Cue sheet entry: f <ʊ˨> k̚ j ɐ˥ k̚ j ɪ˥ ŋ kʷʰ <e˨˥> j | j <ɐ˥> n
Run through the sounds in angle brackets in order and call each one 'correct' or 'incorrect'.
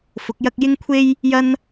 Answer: incorrect, incorrect, correct

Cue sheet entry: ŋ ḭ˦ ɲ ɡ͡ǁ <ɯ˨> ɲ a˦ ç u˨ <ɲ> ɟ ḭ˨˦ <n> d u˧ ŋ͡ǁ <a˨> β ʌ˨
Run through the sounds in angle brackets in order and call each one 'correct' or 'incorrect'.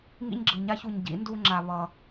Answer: correct, correct, correct, correct

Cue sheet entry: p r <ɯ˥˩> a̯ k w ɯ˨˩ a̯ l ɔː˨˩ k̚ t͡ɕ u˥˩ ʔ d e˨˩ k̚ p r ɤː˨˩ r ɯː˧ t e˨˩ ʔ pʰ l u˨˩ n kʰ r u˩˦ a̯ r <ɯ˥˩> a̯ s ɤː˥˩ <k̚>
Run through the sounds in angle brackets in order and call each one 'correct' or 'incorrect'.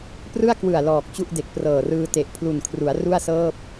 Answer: correct, incorrect, incorrect

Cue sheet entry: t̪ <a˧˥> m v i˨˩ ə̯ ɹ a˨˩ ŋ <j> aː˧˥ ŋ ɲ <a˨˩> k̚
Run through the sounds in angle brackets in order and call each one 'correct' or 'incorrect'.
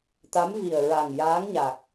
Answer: correct, correct, correct

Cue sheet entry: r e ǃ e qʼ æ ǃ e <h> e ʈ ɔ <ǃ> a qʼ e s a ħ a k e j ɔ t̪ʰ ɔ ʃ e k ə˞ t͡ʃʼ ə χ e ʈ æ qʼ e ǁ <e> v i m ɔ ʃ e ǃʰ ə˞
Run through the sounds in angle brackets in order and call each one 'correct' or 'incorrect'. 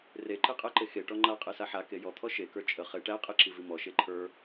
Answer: incorrect, incorrect, incorrect

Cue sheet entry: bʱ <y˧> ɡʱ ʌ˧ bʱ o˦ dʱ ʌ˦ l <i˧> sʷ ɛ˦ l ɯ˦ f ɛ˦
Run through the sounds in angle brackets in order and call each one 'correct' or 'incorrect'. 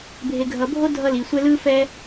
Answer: incorrect, correct

